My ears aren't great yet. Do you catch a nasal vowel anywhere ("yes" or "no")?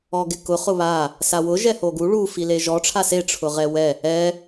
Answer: no